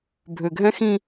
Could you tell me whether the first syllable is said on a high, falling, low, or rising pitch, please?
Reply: low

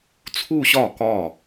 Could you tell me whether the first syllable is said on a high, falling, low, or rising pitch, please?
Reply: falling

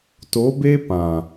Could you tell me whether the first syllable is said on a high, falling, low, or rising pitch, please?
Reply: rising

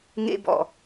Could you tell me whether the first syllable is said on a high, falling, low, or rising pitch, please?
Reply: high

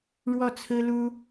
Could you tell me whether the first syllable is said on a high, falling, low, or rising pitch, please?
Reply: falling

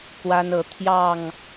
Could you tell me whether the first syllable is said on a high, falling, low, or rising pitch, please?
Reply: high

